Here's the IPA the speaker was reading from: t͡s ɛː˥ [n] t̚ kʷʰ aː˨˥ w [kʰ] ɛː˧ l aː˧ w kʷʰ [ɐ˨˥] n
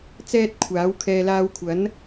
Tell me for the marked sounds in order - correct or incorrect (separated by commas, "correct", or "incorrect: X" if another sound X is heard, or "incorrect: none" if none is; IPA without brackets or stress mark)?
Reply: incorrect: none, correct, correct